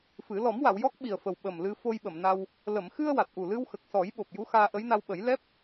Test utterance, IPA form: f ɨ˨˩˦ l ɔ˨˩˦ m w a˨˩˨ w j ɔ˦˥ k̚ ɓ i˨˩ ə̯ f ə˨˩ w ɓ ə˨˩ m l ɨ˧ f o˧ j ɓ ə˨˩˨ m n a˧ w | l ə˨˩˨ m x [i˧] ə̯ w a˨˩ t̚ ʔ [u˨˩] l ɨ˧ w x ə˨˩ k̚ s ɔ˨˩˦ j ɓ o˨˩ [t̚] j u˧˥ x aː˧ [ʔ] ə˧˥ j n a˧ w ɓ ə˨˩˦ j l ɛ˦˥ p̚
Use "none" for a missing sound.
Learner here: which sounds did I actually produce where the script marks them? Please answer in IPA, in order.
ɨ˧, u˨˩, p̚, ʔ

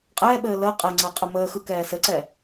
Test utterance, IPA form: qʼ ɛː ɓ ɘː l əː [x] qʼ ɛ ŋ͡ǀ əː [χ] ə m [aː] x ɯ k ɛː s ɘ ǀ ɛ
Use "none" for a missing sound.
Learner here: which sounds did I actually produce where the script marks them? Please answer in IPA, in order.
none, qʼ, əː

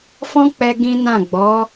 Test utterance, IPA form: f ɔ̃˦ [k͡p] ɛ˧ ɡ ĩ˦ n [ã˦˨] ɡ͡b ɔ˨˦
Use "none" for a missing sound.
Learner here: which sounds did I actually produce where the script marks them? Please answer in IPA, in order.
k͡p, ã˦˨

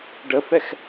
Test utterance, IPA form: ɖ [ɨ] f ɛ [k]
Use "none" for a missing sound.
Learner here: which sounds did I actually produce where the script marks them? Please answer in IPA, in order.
ə, x

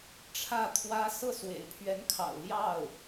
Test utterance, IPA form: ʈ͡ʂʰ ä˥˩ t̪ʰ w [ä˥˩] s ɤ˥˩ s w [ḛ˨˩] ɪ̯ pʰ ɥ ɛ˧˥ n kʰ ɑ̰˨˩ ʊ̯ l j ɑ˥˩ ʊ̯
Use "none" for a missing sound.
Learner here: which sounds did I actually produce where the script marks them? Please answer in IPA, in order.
ä˥, ḛ˨˩

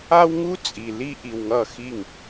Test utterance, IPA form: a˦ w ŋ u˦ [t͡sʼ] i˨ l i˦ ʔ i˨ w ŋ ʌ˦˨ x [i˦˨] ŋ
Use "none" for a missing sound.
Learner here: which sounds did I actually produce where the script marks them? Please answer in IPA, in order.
t͡sʼ, i˦˨

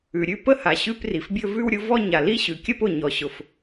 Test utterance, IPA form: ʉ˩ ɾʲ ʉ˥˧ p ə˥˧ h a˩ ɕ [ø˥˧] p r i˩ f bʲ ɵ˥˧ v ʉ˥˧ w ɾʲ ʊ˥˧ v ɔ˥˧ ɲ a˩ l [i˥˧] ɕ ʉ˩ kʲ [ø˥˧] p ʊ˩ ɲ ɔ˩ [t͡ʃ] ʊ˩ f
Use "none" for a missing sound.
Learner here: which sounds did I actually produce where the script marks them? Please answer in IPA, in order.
ʉ˥˧, i˥˧, ə˥˧, ɕ

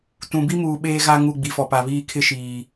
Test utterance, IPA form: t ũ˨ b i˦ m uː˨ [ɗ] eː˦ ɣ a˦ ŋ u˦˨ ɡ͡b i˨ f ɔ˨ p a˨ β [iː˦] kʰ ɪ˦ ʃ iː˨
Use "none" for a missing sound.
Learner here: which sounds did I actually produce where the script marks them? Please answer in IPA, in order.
ɓ, iː˦

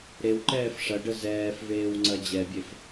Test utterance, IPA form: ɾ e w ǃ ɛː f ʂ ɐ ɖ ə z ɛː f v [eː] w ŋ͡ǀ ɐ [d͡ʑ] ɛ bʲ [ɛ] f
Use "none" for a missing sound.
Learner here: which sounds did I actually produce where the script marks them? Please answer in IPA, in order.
eː, d͡ʑ, e

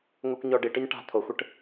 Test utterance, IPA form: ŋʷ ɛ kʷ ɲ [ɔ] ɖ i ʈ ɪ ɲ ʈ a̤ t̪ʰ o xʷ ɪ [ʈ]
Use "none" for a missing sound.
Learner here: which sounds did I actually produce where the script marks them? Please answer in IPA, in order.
ɔ, ʈ

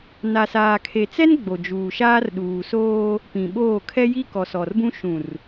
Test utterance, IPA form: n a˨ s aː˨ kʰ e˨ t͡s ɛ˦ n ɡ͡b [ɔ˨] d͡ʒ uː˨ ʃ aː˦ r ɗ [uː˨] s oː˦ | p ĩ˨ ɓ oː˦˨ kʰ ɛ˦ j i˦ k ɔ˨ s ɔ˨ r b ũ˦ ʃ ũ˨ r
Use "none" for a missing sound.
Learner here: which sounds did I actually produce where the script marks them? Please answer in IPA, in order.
o˨, uː˨

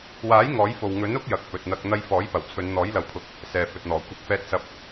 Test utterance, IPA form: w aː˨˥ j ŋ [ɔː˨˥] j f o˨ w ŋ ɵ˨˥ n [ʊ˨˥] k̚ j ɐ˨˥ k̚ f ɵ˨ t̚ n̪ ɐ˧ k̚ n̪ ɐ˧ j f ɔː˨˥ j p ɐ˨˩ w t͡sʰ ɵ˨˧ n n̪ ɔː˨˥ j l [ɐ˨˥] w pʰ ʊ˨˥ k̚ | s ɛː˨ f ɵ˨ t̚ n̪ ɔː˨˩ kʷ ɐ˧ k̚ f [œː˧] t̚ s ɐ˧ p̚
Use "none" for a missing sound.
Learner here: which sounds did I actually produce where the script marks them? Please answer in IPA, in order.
ɔː˨˥, ʊ˥, ɐ˨˥, ɛː˧

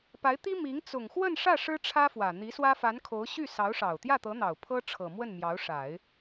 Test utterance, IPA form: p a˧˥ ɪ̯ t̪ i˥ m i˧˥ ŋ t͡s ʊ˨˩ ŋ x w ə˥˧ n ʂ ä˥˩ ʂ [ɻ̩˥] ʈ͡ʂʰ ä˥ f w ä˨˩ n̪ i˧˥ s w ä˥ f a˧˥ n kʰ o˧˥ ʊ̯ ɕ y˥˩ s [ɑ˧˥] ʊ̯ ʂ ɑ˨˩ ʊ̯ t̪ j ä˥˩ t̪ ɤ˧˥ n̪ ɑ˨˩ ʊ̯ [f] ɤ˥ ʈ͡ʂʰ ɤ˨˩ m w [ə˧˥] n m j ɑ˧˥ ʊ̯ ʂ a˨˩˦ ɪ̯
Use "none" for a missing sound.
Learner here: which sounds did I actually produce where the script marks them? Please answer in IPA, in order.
ɻ̩˥, ɑ˧˥, pʰ, ə˥˩

